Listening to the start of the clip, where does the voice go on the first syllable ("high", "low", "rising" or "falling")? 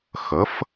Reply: rising